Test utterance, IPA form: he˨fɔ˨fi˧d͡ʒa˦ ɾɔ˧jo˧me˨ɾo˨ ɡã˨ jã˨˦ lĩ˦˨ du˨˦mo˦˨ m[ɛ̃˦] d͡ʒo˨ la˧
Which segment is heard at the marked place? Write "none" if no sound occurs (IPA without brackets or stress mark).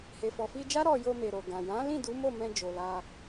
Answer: ɛ̃˧